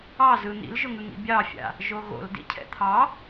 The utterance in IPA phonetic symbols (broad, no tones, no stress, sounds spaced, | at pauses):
ɑ z ɯ n̪ ḭ l ʒ ʊ ŋ ɯ ŋ ḭ bʲ ɑ fʲ a̰ | ʒ o ɣ o̰ l d ḭ cʰ ɛ̰ t̪ʰ ɑ